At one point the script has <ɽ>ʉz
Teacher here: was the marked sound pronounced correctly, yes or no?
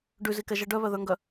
no